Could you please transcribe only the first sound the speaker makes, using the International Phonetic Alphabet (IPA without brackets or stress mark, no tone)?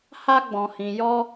h